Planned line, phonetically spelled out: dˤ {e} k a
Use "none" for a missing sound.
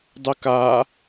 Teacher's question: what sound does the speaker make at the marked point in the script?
ɨ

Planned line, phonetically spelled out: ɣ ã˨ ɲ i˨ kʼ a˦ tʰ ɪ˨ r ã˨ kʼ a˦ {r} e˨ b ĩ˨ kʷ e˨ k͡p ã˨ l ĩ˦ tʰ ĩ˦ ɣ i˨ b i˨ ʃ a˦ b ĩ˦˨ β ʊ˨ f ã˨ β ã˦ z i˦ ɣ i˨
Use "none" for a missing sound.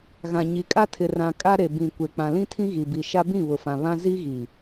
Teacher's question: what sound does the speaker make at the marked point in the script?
ɾ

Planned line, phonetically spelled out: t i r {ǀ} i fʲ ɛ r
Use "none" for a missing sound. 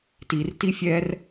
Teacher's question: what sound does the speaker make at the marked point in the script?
t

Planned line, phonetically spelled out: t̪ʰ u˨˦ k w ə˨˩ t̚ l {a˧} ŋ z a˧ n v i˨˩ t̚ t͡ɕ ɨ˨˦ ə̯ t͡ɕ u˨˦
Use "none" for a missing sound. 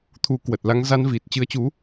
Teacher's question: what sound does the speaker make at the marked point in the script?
a˧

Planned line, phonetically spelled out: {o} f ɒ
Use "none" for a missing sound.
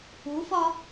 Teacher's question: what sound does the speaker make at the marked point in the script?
u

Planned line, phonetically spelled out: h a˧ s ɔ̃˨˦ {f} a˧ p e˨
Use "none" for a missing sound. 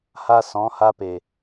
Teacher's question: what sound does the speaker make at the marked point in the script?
h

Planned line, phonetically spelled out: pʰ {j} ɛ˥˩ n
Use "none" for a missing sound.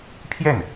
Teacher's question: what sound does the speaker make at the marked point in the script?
j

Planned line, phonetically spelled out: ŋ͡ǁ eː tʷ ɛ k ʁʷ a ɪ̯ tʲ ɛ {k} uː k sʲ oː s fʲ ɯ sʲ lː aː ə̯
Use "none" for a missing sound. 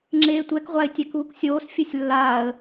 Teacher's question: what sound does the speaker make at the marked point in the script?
k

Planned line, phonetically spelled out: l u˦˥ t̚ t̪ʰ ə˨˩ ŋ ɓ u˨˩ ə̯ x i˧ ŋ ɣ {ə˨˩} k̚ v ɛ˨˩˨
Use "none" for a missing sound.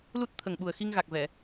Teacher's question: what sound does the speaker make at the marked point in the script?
a˨˩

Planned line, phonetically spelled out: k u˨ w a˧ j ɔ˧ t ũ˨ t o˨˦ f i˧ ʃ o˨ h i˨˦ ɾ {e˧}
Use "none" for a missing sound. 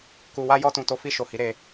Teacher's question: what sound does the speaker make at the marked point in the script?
e˧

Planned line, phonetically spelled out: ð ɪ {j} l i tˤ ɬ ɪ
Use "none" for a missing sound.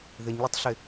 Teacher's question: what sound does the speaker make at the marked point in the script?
ɲ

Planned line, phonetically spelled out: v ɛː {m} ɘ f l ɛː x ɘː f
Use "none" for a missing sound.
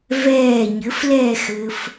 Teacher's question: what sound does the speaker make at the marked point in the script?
ɲ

